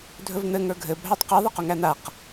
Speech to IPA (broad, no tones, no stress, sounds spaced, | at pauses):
dʱ ɵ v n̪ ɘ ŋ ə˞ ɡʱ ɘ bʱ æ tˤ q ɛ ðˤ ɘ q ɵ ŋ æ n̪ a q